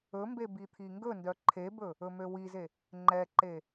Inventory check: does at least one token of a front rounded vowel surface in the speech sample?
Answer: yes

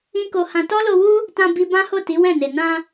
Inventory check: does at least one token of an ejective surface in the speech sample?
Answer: no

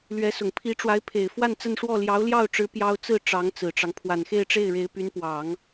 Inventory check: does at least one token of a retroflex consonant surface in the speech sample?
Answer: yes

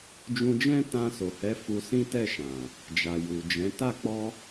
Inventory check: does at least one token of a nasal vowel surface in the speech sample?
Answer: yes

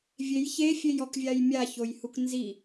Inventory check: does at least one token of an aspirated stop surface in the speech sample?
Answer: no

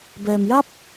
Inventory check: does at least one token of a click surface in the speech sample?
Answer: no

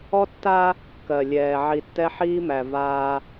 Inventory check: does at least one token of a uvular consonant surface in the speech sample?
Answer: no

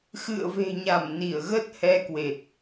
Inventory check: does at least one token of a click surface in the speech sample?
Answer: no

